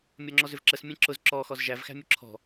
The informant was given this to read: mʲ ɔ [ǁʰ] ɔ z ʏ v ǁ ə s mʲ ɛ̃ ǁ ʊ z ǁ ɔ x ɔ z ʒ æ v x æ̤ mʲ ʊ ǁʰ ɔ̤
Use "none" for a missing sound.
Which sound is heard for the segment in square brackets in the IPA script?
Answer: ŋ͡ǁ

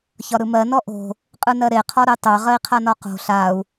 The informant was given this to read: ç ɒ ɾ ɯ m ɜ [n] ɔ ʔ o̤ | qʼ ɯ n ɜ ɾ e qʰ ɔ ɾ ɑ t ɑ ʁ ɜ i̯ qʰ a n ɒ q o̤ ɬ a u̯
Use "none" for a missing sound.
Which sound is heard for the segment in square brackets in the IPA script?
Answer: n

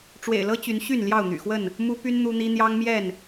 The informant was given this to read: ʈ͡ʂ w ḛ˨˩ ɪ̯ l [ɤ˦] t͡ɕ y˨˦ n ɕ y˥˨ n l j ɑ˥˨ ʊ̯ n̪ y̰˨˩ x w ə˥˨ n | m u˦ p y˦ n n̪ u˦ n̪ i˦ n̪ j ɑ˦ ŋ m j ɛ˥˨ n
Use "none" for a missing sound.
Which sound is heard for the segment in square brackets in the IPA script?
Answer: ɤ˦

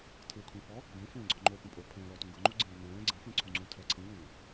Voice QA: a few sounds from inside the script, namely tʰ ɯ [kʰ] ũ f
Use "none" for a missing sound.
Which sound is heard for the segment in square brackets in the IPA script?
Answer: kʰ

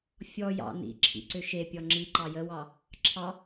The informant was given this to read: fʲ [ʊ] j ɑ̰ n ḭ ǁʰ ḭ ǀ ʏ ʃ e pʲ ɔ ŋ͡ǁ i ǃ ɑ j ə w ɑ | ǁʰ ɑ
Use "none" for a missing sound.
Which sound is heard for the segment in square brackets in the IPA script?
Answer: ɔ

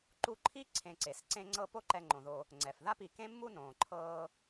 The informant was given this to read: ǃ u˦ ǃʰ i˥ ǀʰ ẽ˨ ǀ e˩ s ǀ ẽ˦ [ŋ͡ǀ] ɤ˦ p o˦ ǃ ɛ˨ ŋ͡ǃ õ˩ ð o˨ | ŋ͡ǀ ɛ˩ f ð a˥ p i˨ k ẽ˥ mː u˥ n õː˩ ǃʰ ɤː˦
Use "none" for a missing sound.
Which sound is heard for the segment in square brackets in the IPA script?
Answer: ŋ͡ǀ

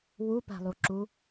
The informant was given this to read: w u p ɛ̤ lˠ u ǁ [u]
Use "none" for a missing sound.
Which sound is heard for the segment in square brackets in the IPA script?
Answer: u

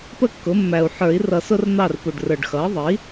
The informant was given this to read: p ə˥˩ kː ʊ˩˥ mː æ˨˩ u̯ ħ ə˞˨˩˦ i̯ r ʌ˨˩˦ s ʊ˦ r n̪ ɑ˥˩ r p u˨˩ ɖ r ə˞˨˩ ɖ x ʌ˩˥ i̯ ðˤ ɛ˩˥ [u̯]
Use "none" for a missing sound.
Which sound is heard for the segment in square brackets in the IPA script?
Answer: i̯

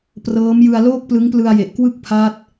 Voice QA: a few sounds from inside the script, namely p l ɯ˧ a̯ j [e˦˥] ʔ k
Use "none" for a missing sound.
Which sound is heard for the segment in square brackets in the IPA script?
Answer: e˨˩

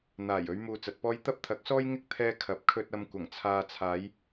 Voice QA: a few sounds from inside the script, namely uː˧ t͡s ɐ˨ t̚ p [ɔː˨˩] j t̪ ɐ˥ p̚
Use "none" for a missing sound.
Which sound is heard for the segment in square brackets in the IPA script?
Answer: ɔː˥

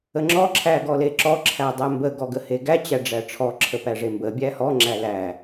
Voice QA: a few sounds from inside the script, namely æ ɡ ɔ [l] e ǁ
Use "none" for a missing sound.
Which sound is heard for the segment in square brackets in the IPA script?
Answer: l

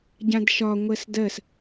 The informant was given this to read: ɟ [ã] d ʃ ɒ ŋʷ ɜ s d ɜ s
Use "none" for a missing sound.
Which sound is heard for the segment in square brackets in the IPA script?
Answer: ã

